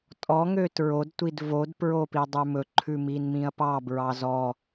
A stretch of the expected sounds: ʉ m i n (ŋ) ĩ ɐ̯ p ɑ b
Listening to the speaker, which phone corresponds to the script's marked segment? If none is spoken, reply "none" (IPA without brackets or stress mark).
m